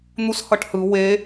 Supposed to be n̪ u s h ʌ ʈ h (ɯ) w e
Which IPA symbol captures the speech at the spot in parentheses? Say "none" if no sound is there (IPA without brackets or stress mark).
ɯ